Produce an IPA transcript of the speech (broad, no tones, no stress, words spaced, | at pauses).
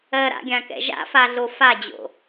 ɜɾa̰ɡʲãkɛ̰ ʒa̰faɮo fad͡ʑo̰